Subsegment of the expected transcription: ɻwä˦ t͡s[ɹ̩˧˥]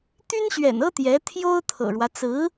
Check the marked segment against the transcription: correct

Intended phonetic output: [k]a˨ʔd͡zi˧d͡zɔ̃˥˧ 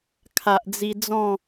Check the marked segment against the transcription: incorrect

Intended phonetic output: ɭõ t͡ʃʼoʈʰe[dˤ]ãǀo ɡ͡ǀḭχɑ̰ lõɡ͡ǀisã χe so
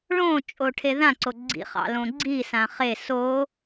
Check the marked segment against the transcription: incorrect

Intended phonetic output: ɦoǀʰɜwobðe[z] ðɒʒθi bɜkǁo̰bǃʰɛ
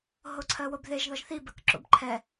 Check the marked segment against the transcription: incorrect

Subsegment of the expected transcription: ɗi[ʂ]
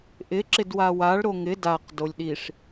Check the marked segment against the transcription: correct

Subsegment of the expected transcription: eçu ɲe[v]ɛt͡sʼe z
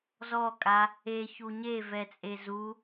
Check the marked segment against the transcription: correct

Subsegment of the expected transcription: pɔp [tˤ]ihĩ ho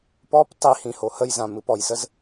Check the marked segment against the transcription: correct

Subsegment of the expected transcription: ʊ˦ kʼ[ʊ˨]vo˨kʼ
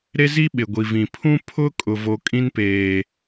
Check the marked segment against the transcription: correct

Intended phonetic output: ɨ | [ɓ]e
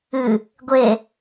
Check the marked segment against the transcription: incorrect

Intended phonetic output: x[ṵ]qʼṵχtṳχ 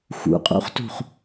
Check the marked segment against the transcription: correct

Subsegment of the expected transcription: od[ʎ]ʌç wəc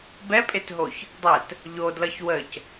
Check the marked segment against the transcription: incorrect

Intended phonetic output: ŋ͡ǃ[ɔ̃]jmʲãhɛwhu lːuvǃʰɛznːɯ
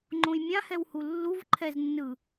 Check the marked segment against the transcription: incorrect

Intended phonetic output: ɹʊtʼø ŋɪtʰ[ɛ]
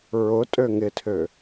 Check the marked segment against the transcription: incorrect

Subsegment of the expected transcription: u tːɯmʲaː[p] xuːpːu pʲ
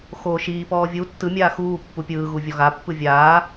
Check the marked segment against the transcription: incorrect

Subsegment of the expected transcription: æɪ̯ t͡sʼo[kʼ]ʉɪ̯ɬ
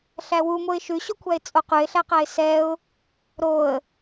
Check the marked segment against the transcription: incorrect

